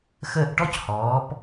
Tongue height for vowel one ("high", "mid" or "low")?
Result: mid